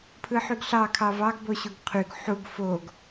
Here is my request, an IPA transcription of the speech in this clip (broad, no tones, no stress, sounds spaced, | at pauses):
pʰ ɯ ħ y ɡ ɬ ɑ kʰ ɑ v ɑ ɡ b o ɕ u ɡ qʰ y ɡ ħ u ɡ f o ɡ